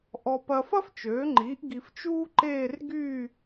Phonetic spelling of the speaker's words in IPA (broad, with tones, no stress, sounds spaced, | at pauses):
ʔ ɔ˧ p ɐ˧ f ɐ˥ f t͡ʃ øː˩˥ ŋ͡ǃ iː˩˥ ʔ ɡ i˧ f t͡ʃ uː˥ ǃ eː˥˧ r ɡ yː˥˧